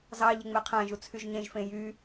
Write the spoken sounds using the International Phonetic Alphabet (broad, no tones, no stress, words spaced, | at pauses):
zɑ ʎeŋ͡meqʰæ̃ʒu t͡sʰyʒɲẽʒfẽ jy